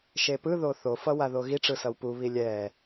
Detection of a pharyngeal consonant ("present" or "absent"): absent